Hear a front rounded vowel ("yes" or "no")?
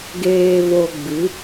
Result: no